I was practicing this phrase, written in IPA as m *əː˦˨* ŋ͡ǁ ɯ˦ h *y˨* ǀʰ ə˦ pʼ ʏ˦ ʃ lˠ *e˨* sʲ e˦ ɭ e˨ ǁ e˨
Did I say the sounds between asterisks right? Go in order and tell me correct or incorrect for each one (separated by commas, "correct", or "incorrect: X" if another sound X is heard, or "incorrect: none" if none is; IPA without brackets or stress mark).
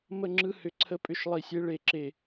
incorrect: ə˦˨, incorrect: ʏ˨, incorrect: i˨